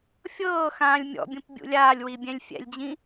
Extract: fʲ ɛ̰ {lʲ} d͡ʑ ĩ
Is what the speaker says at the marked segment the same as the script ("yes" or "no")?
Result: yes